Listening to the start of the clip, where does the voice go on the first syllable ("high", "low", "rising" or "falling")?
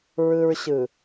high